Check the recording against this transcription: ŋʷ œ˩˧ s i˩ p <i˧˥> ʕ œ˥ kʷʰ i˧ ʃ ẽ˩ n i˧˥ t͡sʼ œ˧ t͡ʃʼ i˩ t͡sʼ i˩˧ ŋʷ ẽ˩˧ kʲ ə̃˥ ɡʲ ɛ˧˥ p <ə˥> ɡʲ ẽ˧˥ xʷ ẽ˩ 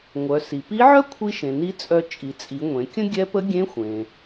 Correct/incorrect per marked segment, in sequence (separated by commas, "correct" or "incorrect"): correct, incorrect